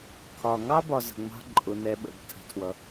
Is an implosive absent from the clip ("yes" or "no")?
no